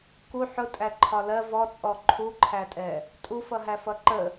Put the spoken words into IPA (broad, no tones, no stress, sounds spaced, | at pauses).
k u ħ ʊ tʼ æ ǃʰ ɒ l ɜ v ɔ t͡sʼ ɔ ǃʰ u ǃʰ æ tʼ ɛ | tʼ u f ʌ ɦ æ f ʌ ǃ ə